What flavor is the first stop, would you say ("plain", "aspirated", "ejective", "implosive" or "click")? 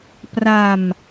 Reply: plain